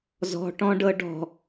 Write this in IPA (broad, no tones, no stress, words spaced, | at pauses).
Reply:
zɔ̤ʈɔ̃ɖɤ ɖɔ̤